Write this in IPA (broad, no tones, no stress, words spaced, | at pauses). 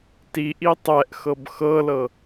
tiʔi tˤɛʔxɤb xɤlɤ